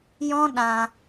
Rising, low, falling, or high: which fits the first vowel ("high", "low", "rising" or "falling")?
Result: high